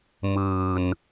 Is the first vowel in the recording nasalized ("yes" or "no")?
no